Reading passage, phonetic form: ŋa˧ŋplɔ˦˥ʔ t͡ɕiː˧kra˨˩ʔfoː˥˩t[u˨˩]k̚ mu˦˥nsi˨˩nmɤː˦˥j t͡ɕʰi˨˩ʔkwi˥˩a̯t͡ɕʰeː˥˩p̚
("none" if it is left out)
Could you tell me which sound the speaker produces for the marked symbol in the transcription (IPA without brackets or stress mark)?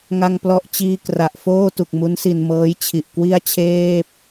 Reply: u˨˩